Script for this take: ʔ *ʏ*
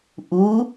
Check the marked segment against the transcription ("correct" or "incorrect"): incorrect